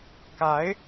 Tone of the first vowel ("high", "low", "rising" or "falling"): rising